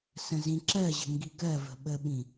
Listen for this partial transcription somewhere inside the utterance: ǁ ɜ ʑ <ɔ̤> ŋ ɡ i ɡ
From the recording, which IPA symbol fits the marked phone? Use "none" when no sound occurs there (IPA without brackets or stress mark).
ə̤